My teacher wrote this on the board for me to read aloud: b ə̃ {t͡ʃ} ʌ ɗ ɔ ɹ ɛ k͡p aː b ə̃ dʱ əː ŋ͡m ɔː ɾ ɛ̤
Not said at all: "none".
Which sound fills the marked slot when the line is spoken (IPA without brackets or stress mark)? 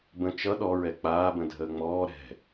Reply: t͡ʃ